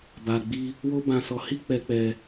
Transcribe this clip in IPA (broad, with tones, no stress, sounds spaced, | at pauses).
b a˧ ɡ͡b i˦ | w o˦ b ã˧ s ɔ˧ h i˦ k͡p ɛ˧ k͡p ɛ˧